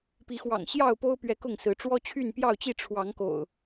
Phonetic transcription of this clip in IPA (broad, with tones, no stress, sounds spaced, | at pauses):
p i˨˦ x w ɑ̰˨˩ ŋ ɕ j ɑ˥˨ ʊ̯ p o˦ ʊ̯ p ɥ ɛ˨˦ k ʊ˥˨ ŋ s ɹ̩˨˦ ʈ͡ʂ w ɔ˦ t͡ɕʰ y˥˨ n p j ɑ˥˨ ʊ̯ t͡ɕ i˥˨ ʈ͡ʂʰ w ɑ˨˦ ŋ k o̰˨˩ ʊ̯